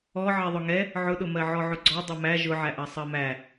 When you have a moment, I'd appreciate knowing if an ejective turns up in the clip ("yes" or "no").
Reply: no